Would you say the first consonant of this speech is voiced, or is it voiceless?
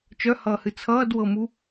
voiceless